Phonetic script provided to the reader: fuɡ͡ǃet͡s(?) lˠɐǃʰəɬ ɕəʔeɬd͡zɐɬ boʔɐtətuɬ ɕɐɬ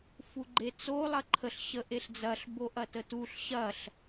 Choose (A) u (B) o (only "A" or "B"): B